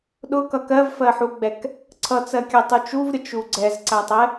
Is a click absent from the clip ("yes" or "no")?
no